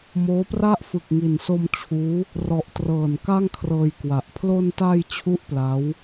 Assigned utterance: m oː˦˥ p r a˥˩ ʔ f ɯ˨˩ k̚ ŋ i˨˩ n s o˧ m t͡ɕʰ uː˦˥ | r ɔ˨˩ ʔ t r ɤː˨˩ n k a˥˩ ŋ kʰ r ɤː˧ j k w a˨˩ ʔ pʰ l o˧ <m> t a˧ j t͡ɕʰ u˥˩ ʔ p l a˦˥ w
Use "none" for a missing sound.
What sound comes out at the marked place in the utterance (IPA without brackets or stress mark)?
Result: n